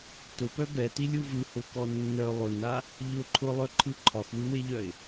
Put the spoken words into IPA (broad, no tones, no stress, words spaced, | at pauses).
tʊpœ bɛtilʲu vɯhʊkɔ nːœ lˠʊna | ʎʊ ǃʰʊlˠœǃʰɯ ǃʰɒxwɯweʎœɪ̯